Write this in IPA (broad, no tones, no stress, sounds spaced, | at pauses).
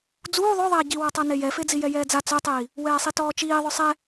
d͡z uː ðˤ œ ðˤ ɛː ɟ i w ɔ tˤ a n e j ɛ f e d͡z i j ɛ j ɛː d͡z a t͡s œ tˤ iː | w ɛː sˤ i t ɔː t͡ʃ iː ðˤ œ sˤ ɛ